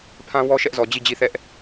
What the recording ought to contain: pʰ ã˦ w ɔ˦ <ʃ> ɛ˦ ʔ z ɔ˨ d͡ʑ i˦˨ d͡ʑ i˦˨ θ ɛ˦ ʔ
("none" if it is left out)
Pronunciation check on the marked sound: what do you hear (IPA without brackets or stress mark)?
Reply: ʃ